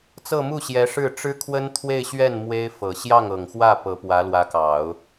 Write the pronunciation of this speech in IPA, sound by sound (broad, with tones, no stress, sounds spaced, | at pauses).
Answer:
t͡s ɤ˥˧ m u˥˩ ɕ j ɛ˧˥ ʂ ɻ̩˥˩ ʈ͡ʂ ɻ̩˥ kʰ w ə˥ n t̪ʰ w e˥˧ ɪ̯ ɕ ɥ ɛ˥˩ n m w e˥ ɪ̯ f ɤ˨˩ ɕ j ɑ˥˩ ŋ ɤ˨˩ ŋ x w ä˥˩ p ɤ˧˥ p w ä˧˥ l w ä˧˥ k ɑ˨˩˦ ʊ̯